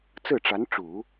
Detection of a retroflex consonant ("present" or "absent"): present